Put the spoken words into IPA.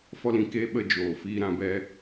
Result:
f ɔ˦ l ĩ˧ k eː˦ ɓ ə˧ d͡ʒ oː˨ f iː˧ ɾ ã˧ b ɛ˧

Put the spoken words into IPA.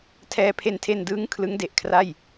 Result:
tʰ ɛː˧ pʰ e˧ n tʰ e˧ n d ɯː˦˥ ŋ kʰ l ɯ˦˥ ŋ d e˨˩ ʔ kʰ r a˥˩ j

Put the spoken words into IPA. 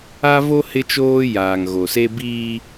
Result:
a˦ v o˦ h ɪ˦ t͡ʃ oː˦ j aː˨ ŋ ɣ o˨ s e˦ b iː˦

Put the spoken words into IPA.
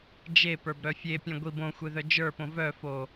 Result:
d͡ʒ e p ə˞ b ɾ œ fʲ e pʲ œ̃ ɡʷ i b õ xʷ e ð œ d͡ʒ ə˞ p õ v œ f o

